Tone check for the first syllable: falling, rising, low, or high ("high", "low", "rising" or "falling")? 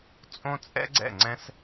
high